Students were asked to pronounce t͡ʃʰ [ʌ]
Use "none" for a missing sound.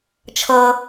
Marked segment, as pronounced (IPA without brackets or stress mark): ʌ